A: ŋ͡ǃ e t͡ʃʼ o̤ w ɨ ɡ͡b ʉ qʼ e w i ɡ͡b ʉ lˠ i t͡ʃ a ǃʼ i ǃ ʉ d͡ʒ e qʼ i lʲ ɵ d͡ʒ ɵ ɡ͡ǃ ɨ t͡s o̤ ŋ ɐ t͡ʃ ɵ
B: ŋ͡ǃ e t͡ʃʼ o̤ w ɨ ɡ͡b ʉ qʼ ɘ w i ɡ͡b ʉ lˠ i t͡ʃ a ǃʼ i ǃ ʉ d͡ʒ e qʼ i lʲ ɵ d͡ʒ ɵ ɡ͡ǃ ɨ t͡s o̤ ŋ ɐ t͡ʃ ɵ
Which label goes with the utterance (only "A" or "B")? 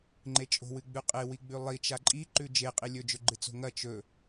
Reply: A